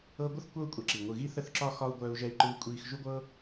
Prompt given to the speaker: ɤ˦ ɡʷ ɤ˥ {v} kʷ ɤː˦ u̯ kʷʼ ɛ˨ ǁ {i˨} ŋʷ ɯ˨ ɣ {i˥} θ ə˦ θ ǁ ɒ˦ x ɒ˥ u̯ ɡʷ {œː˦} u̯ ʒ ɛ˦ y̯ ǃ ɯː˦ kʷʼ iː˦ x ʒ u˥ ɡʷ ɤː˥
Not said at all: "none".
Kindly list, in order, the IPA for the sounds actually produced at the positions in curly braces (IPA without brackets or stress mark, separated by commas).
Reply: θ, i˩, i˦, œː˦